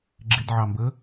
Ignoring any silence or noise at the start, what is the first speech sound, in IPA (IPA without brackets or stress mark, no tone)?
ɡ͡ǁ